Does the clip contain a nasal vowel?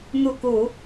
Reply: no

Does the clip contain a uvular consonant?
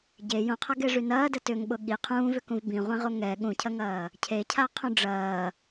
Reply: yes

